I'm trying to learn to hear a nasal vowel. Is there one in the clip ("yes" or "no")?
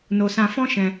yes